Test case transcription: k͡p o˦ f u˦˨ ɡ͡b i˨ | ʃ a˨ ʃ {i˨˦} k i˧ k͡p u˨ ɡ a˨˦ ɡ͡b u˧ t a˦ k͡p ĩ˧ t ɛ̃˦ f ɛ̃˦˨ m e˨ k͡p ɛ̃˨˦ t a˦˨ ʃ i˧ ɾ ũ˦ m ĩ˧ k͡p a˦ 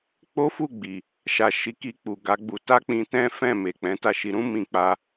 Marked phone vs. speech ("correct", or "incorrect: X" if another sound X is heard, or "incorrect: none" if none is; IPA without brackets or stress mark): correct